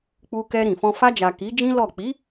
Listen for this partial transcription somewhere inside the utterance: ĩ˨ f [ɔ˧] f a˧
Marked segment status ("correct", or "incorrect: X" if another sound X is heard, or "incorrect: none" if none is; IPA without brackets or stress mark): incorrect: ɔ̃˧